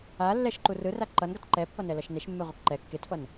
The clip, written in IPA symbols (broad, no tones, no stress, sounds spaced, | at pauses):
a lː ɛ ʃ ǃ u r ɯ r a ǃ ʌ n ɡ a t ǃ ɛ pː ʌ n ɛ l ʌ ʃ n e ʃ mː e ʁʷ ʌ k ǃ ɛ kː e t f ʌ n